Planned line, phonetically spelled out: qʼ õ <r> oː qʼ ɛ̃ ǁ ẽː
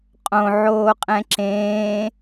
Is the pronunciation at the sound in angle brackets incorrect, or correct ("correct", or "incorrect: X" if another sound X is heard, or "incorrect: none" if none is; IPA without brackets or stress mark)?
incorrect: ʕ